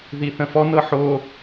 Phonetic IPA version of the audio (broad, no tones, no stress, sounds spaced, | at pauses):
ð i θ ə̃ f ɔ n ɤ ħ o